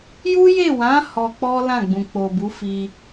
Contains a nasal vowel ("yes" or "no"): yes